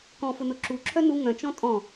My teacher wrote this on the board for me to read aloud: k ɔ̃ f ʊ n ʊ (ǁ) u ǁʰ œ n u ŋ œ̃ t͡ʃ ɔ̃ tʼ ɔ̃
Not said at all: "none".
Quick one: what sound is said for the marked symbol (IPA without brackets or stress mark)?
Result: ǁ